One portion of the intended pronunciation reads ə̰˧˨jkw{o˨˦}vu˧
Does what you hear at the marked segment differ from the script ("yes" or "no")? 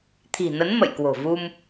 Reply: yes